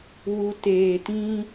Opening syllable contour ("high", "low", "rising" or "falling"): low